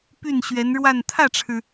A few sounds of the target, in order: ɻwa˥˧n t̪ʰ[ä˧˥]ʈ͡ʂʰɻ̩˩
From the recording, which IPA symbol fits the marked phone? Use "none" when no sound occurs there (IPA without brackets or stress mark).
ä˥˩